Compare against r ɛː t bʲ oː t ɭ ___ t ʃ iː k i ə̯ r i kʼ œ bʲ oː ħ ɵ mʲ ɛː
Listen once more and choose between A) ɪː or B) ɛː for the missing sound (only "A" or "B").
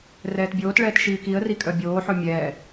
B